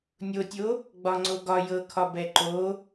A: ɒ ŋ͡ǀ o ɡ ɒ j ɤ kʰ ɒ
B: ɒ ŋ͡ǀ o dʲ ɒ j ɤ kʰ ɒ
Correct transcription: A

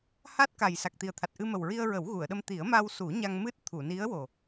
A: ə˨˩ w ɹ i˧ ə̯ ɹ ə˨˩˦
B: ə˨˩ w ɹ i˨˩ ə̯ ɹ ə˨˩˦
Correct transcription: A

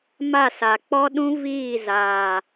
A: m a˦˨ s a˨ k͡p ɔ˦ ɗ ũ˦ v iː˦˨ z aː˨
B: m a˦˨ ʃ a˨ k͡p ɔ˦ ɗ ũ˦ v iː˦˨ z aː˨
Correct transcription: A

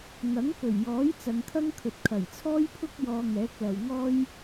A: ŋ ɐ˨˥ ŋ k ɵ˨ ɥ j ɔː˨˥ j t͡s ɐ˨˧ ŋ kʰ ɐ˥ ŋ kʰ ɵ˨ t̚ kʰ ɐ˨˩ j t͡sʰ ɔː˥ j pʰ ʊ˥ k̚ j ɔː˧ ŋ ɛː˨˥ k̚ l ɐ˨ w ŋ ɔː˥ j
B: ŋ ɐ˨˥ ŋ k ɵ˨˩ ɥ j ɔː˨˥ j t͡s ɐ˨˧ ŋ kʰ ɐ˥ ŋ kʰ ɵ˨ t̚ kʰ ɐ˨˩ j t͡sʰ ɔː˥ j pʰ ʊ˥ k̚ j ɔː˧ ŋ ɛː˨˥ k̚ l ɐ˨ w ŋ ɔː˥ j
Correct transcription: B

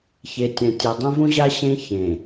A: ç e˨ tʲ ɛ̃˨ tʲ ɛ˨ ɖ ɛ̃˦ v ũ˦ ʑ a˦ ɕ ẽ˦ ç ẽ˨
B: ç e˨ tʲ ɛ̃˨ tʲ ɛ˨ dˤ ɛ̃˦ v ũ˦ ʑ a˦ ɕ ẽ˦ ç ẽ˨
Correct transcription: B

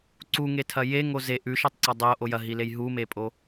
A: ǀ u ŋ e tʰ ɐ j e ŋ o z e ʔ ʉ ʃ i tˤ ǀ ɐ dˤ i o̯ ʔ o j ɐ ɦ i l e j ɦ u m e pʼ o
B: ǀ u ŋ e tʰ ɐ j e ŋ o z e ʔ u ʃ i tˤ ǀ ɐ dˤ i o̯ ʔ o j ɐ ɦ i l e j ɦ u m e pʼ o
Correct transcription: A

